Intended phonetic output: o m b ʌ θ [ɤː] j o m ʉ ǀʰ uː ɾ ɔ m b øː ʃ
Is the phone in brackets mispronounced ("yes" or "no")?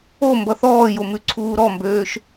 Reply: yes